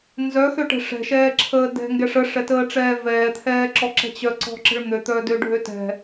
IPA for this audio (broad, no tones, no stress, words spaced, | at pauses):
nzœxøʈɛ̤ ʂɛ̤ʃɛːǁʰəː dɛ̤ŋɡɛʂ əʂɛtəːʈ͡ʂɛː vɛːt̪ʰɛːǁɔǁɛ̤ t͡ɕœǀɔ̤ǁə̤ɭ n̪øt̪œdøɖʱø tɛ̤